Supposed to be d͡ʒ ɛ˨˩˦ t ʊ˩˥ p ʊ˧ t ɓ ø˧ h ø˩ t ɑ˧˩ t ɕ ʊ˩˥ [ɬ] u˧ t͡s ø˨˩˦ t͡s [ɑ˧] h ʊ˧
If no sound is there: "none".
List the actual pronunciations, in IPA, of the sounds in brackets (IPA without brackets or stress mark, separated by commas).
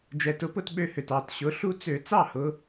ɬ, ɑ˥˩